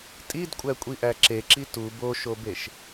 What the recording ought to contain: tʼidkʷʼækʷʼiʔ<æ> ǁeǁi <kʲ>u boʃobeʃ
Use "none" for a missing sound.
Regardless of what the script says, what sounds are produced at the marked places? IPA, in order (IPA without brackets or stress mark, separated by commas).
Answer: æ, t